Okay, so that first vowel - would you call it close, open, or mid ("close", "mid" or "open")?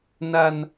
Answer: open